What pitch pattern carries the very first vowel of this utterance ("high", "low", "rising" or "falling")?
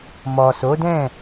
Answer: low